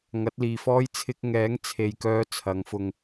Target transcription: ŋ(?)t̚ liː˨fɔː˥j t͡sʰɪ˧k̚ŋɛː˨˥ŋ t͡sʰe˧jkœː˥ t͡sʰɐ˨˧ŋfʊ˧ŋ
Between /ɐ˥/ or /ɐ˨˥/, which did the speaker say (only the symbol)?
ɐ˨˥